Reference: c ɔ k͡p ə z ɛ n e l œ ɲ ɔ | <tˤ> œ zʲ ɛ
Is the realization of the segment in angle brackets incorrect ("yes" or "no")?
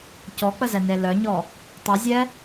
no